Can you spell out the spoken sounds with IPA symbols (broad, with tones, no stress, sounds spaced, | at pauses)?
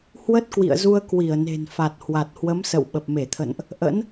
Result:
h w ə˦˥ t̚ k w ḭ˧˨ ə̯ z u˧ ə̯ k w i˧˩ ə̯ n e̤˨˩ n f a˨˩ t̚ h w a˨˩ t̚ h w ə˨˦ m s ə̰˧˨ w ɓ ə˨˩ p̚ m e˧˩ t̪ʰ ə̰˧˨ n ʔ | ʔ ə̰˧˥ n